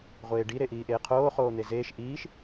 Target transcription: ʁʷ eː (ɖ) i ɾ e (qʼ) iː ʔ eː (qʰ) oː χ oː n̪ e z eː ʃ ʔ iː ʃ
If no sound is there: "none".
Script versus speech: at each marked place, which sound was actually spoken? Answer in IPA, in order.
ɖ, ʔ, qʰ

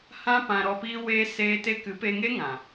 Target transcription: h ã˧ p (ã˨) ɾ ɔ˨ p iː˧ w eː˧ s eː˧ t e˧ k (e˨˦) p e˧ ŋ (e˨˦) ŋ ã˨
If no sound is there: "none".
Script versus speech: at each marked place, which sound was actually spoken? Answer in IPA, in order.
ã˨, ɨ˨˦, e˦

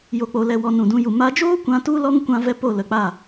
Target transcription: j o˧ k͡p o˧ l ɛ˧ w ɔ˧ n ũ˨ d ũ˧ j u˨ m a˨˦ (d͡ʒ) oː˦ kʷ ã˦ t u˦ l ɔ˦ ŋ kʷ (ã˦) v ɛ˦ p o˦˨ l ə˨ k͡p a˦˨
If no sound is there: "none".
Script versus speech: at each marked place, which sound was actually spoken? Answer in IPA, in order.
d͡ʒ, ã˦

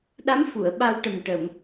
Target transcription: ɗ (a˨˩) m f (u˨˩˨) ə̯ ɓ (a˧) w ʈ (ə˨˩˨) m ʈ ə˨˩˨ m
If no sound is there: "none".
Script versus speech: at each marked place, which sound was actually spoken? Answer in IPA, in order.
a˧˥, u˨˩˨, a˧, ə˨˩

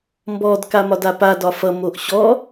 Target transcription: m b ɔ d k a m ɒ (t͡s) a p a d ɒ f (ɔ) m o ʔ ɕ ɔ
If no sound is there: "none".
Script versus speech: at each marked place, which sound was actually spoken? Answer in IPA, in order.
d, ʌ

